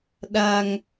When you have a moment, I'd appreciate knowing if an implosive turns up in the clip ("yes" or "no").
yes